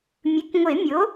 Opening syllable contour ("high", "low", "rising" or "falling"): rising